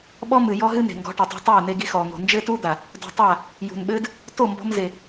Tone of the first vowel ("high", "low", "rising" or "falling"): high